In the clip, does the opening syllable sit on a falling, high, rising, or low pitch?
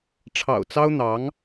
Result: low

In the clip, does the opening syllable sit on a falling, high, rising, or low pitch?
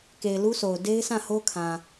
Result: low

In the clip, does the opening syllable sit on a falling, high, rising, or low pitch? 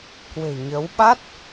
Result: low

